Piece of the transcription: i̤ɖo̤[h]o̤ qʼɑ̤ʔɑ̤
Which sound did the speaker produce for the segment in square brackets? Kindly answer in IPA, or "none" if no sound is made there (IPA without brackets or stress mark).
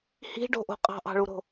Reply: ʔ